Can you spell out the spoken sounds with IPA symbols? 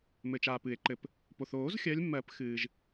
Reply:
m ɘ˨ t͡ʃ aː˨ p ɨ˨˩˦ e̯ ǃ ɘ˨ p | p o˨ θ oː˨˩˦ z xʲ ɜ˨˦ lʲ mː ɜ˨˩˦ p x ɨː˨ ʒ

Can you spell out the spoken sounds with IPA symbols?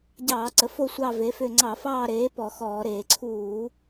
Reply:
ɟ ɑː˧˩˧ ǀ ə˩˥ f o˦˨ sʷ ɑ˦˨ v e˩˥ f ʏ˦˨ ŋ͡ǀ ɑ˧˩˧ f ɑː˦˨ ɾ eː˩˥ p ɔ˧˩˧ x ɔː˧˩˧ ɾ eː˧˩˧ ǀʰ uː˧˩˧

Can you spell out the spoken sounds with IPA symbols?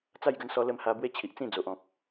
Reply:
t͡s a˥˧ j ɡ ə˧ n s ɔ˧ l ə˧ m h a˧ b w e˦ t͡ɕʰ i˨ ʔ t͡s ĩ˥˧ d͡z o˨ ʔ ɔ̃˨ k̚

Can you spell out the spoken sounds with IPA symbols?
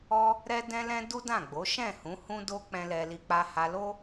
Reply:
ɔ˦ | ɾ ɛ˦ d ɛ̃˦ l ɛ̃˦ d u˦ d ã˦˨ ɡ͡b o˨˦ ʃ ɛ̃˦˨ h ũ˨˦ h ũ˦ d o˦ k͡p ɛ̃˦ l ɛ˦ l i˦ k͡p a˧ h a˧ l o˦

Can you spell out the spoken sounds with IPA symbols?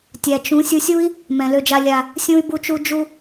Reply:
tʲ æ˨ t͡ʃ ũ˨˦ sʲ u˧ sʲ u˦ i̯ | m ɛ̃˨ l ø˧ d͡ʒ a˧ lʲ a˨ | sʲ ũ˧ y̯ b u˧ t͡ʃ u˧ d͡ʒ u˧

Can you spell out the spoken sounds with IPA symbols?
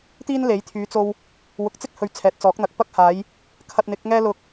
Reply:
t̪ iː˥ n l e˨˥ j t̪ʰ yː˨˧ t͡s o˧ w | w ʊ˨ k̚ t͡s ɪ˥ k̚ h ɵ˨˧ ɥ t͡sʰ ɛː˨ t̚ t͡s ɔː˨˥ k̚ n̪ ɐ˨ k̚ p ɐ˥ k̚ h aː˨˧ j | kʰ ɐ˧ t̚ n̪ ɪ˨˥ k̚ ŋ ɛː˥ l ʊ˧ k̚

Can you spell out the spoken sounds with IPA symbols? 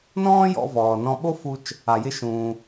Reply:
n ɔ̃ː˥ j ɔ̰˧ v ɔː˩ n ɔ̃˧ ɓ o˥ f u˧ t͡ʃ | a˩ j ɪ˧ ʃ ũː˩

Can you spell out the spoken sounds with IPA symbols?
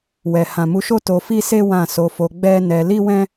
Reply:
w ɛ˨ h ã˨ m u˨˦ ʃ o˦ t o˧ f i˦ s e˦ w ã˦˨ s o˧ f o˧ ɡ͡b ɛ˦ n ɛ˧ l i˦ w ɛ̃˦

